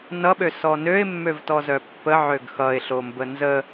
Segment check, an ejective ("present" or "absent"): absent